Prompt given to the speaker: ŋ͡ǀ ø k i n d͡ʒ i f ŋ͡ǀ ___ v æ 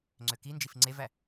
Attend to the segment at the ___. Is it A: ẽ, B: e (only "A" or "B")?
B